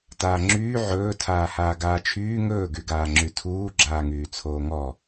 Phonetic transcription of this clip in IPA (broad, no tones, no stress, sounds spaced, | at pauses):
t aː ŋ͡ǁ yː ʕ ɵː tʰ aː h aː ɡ aː t͡ʃʰ yː ŋ ɵː ɡ y ɡ aː ŋ͡ǁ y tʰ uː ɡ͡ǁ aː ŋ yː t͡sʰ oː ŋ ɔ